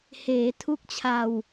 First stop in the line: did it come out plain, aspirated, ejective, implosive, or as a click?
aspirated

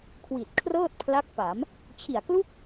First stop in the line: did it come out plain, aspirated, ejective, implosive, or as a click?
aspirated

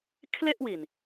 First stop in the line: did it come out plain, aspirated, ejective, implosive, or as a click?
aspirated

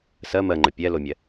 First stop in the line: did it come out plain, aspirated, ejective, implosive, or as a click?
click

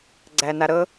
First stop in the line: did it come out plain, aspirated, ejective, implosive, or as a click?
click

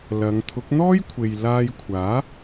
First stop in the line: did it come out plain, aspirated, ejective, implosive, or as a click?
aspirated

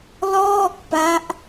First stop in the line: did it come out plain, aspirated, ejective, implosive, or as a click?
plain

